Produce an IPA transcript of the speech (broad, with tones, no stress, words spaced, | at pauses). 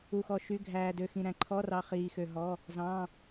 u˧xɔ˧ʃy˧˥˧ ɡʱæː˧dø˧xĩ˧ ɾæ̃˧ǃʰɔ˧˥˧rɑ˧ χiː˧xø˧ɦɔ˧˥˧ | zɑ̃˧˥˧